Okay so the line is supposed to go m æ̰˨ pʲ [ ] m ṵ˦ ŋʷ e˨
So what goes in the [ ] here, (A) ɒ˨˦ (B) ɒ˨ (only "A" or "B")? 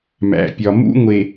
B